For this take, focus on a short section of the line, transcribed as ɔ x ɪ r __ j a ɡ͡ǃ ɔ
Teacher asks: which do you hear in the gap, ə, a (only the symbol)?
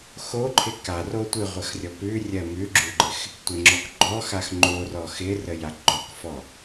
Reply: ə